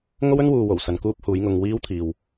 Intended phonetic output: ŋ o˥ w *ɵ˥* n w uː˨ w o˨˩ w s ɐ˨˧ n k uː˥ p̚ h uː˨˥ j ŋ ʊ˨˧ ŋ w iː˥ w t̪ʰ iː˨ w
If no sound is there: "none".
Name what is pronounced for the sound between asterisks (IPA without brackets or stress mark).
ɵ˥